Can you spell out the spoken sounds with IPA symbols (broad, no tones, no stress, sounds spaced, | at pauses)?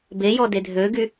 b e j ɔ d e dʱ ø ɡ y